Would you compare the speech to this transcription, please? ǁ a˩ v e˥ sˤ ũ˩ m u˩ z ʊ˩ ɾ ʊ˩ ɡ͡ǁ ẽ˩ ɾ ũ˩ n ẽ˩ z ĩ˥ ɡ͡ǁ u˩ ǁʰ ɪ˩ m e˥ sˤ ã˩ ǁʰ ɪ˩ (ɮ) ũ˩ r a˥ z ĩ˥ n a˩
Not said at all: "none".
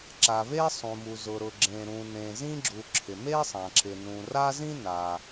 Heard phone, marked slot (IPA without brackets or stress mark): n